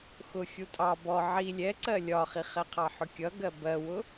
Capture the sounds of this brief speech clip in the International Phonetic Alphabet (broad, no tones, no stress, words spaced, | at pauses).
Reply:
xʊ xʲutʼɑ bɔ ʕi lʲɛǀɜ lʲɒχiχɛ qʰɑħʊkʲʌɡɜ bɜwʊ